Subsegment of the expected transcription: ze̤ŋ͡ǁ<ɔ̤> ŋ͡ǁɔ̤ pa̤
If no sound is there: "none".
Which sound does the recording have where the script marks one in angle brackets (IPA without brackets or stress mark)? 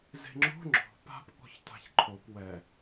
o̤